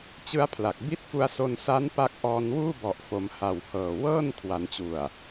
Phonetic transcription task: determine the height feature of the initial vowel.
high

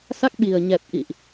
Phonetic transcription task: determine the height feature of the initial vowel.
low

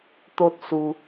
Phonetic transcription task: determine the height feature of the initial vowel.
mid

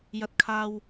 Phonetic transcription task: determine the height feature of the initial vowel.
low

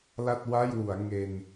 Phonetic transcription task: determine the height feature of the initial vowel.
low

